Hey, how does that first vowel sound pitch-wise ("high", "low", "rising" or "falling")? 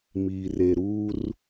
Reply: low